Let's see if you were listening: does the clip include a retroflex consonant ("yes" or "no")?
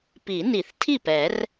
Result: no